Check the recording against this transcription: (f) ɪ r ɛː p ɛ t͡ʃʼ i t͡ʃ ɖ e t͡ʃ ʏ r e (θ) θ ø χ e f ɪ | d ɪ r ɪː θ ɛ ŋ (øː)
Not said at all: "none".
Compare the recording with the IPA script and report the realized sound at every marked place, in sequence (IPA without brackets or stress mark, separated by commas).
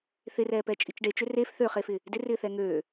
θ, f, øː